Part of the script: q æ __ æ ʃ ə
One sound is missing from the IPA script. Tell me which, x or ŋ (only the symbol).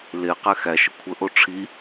x